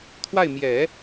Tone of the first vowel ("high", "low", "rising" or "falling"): falling